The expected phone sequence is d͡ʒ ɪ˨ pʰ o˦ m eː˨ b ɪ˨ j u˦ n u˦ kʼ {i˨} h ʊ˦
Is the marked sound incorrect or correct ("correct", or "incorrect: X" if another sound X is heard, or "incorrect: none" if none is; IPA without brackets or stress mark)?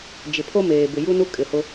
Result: incorrect: ɪ˨